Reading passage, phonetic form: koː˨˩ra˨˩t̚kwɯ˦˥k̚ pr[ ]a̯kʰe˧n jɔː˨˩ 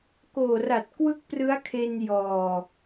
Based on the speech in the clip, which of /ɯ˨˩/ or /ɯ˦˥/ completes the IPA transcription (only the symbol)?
ɯ˦˥